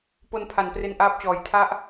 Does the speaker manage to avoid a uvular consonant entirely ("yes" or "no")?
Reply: yes